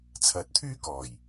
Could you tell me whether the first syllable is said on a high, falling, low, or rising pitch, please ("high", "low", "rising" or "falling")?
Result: rising